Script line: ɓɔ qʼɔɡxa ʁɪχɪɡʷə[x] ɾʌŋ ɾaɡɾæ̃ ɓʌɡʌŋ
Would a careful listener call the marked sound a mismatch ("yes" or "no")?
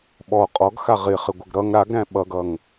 yes